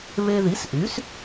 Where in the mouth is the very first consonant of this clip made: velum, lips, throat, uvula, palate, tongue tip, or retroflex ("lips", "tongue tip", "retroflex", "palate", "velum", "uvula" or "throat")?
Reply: lips